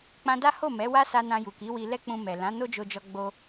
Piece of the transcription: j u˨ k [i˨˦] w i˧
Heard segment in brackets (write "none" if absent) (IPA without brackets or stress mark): i˨˦